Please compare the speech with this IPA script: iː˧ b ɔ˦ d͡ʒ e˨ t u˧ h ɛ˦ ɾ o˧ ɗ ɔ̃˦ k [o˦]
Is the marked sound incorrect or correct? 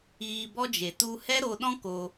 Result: incorrect: o˧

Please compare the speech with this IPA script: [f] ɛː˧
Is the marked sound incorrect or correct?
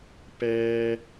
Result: incorrect: p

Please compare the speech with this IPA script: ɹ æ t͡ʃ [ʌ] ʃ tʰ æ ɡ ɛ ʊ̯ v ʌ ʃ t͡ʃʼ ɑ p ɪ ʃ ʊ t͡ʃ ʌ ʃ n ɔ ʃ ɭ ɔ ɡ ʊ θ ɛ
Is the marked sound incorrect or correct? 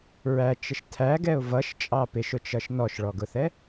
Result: incorrect: ə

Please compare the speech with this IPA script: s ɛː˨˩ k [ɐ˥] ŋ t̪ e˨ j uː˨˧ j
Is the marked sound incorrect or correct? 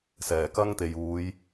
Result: correct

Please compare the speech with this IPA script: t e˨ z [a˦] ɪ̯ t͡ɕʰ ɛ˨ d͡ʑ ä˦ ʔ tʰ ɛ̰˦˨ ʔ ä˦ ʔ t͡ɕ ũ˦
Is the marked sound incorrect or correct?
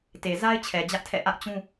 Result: correct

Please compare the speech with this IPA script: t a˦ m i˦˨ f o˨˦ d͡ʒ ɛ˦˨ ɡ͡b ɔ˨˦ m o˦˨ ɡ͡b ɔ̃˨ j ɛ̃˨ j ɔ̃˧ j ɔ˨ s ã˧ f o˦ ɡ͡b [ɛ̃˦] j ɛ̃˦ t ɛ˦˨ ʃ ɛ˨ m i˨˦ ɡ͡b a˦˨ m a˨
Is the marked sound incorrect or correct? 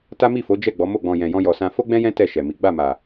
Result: correct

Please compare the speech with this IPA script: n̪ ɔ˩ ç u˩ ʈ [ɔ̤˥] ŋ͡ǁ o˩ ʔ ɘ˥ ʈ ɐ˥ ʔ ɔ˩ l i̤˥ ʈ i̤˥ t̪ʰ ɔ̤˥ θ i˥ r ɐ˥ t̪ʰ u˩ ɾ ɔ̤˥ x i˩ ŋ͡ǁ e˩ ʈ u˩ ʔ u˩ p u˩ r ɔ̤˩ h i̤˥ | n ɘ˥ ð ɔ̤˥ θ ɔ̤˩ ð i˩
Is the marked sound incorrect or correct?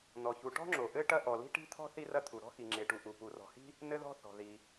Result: correct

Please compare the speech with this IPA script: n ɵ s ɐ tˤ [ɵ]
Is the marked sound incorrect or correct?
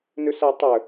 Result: correct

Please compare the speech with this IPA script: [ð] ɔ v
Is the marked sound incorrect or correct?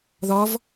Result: correct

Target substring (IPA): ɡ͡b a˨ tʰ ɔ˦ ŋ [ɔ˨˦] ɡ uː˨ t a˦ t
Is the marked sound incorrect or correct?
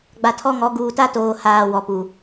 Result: correct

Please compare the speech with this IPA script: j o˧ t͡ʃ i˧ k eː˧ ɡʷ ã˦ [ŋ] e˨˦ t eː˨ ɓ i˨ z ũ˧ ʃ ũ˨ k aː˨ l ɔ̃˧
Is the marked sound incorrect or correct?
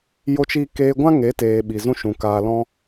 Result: correct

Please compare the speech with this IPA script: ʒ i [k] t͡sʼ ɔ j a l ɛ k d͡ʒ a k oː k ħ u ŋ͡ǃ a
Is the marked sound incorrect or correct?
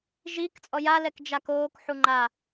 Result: correct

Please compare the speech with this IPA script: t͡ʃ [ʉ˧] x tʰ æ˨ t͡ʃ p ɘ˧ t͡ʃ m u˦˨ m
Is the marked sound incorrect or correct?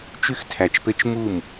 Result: correct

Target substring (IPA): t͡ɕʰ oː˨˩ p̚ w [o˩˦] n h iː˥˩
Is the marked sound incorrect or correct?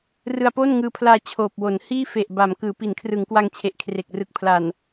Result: correct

